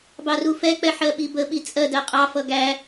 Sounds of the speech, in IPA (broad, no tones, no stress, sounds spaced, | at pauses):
b ɑ r u f ɛ k͡p ɛ ħ ɜ ɓ i b ə ɓ i t͡sʼ ɜ d ɜ qʼ ɑ f ʌ ɡ æ